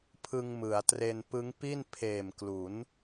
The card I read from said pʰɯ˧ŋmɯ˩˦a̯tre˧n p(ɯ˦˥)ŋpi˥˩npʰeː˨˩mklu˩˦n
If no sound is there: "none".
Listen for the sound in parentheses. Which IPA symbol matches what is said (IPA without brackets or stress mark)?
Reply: ɯ˦˥